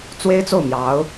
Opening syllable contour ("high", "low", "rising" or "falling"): high